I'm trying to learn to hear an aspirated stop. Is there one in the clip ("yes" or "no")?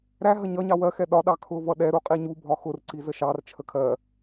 yes